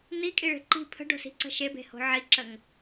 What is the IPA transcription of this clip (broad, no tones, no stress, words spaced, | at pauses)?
n̪ikʼiɭe̤ ǃi̤ pʰə̤ɖo̤si̤ǀə̤ ʃebe̤ho̤ ʕiǁəŋ